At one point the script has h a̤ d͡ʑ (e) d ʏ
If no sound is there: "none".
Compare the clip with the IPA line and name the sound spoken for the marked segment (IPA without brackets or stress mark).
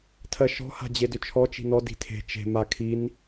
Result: e